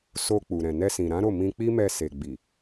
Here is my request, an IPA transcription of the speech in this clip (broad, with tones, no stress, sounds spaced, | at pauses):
s o˧ k͡p u˨ ɾ ɛ̃˨ n ɛ˧ s ĩ˨ ɾ ã˨˦ ɾ o˦˨ m ĩ˧ k͡p i˦ m ɛ˧ s e˨ ɡ͡b i˨